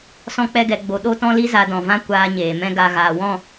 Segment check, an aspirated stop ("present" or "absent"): absent